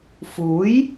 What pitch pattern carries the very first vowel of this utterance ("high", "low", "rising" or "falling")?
rising